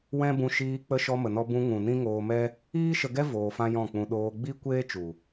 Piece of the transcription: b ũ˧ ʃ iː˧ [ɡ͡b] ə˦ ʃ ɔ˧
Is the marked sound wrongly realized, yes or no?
yes